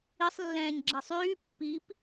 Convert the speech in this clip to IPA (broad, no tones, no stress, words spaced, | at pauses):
isˤ lːɛ̃ːɲɡ͡ǁɛsˤyː pːip